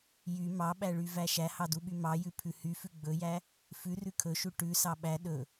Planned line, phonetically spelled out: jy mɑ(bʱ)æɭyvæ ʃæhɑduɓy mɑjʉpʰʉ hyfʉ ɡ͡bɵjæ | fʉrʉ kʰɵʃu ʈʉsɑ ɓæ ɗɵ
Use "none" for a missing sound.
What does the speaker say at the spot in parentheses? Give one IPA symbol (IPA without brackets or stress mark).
ɓ